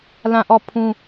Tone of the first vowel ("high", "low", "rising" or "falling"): falling